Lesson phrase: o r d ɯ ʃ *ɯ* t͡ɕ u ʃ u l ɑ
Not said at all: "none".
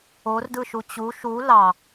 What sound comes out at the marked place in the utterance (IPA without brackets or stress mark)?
u